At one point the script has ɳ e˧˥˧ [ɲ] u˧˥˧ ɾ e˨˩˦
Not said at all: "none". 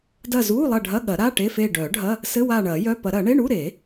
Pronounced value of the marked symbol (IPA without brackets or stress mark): ɳ